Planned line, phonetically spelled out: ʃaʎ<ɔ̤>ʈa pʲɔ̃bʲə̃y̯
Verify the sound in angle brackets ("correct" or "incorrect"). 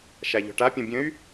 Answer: correct